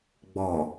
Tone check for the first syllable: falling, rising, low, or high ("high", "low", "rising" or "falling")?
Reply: low